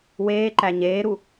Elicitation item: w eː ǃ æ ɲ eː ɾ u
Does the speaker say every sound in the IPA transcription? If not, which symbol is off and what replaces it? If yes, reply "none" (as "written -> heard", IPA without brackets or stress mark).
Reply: none